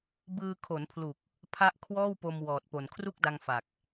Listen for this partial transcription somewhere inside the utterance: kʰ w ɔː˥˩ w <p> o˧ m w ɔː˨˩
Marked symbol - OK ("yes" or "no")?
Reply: yes